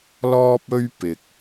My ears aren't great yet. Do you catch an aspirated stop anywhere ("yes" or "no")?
no